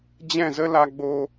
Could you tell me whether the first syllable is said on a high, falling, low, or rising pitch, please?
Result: falling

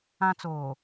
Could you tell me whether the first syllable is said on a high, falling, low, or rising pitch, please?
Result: high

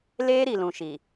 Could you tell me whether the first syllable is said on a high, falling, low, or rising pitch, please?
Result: high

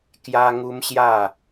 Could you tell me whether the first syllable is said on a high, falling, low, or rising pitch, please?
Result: high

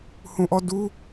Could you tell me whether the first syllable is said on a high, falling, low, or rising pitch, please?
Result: low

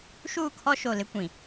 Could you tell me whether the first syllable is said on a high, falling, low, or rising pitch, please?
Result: falling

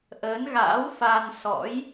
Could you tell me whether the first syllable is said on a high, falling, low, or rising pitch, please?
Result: rising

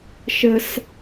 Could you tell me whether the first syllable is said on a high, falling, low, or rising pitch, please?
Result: high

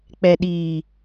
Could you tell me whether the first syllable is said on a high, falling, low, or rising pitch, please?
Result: low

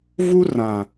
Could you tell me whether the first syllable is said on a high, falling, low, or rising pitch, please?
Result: high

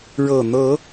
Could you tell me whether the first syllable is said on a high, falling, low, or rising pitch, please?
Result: low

